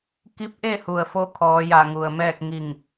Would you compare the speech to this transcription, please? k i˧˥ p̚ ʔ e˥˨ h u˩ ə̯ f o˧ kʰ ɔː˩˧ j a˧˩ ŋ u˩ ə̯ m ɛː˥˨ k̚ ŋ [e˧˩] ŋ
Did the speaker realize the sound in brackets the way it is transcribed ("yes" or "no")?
no